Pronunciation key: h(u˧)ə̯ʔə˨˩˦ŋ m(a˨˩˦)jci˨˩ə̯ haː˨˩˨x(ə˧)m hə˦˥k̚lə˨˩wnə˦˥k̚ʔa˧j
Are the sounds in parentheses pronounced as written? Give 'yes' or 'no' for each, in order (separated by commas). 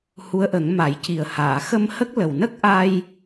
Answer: no, yes, yes